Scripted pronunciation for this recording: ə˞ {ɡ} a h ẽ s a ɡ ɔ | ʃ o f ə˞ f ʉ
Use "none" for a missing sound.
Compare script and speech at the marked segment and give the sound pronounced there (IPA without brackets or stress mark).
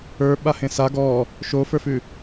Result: ɓ